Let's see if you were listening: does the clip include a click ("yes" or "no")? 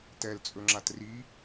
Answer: yes